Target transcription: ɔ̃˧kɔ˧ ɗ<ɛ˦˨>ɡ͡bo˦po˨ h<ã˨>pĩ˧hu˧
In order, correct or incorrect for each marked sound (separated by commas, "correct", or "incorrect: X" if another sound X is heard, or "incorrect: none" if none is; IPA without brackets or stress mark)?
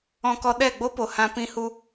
correct, incorrect: ã˧